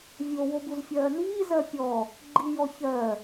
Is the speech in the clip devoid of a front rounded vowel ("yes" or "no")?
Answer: yes